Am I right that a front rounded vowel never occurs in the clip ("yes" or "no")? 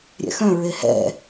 no